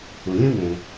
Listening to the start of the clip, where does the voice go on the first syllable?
low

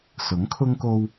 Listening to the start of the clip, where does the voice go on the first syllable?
rising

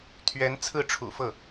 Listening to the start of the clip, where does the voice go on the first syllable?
rising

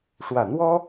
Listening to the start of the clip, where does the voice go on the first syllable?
low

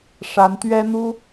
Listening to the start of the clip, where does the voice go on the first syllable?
rising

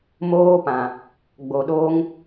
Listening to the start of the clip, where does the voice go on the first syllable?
high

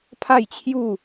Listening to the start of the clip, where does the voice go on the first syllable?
falling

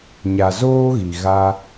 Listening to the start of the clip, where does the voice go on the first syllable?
low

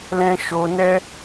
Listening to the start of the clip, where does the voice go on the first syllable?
high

